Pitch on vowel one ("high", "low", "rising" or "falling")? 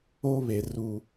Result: high